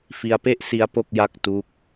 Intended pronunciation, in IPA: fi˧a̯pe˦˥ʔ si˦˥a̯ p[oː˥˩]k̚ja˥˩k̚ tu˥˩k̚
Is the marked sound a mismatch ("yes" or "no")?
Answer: yes